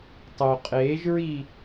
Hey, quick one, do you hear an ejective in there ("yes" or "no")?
yes